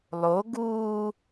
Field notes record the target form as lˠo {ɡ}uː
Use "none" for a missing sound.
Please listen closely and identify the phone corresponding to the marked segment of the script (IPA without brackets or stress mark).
ɡ